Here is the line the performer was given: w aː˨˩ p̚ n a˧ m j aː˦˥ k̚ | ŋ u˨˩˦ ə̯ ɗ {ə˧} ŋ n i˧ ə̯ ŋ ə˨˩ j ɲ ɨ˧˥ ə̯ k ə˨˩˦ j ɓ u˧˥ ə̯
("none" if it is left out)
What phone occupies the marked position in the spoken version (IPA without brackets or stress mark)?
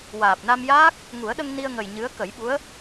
ə˧